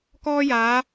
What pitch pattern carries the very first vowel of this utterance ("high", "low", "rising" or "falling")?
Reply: high